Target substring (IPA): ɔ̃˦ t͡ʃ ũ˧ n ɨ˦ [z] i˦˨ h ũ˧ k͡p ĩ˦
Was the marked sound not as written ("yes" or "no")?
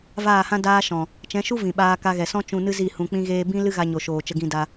no